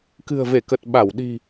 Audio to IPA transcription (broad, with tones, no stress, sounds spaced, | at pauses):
k ɨ̤˨˩ ə̯ v e˧˩ k ə˨˩ t̚ ɓ a˧˩ w ɗ i̤˨˩